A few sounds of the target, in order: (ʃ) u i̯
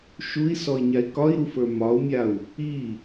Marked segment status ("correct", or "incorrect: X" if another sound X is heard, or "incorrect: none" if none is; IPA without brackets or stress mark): correct